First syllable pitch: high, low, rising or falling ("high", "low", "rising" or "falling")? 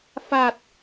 low